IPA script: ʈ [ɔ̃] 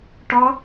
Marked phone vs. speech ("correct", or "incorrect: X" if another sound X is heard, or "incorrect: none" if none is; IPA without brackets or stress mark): incorrect: ɔ